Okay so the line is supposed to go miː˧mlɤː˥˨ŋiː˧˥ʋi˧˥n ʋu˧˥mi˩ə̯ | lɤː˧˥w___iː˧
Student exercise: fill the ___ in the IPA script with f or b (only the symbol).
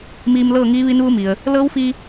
f